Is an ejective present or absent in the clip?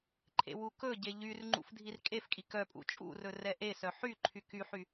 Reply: present